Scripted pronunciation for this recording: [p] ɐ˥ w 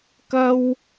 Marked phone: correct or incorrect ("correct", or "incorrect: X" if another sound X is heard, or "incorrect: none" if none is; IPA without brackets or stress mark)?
incorrect: k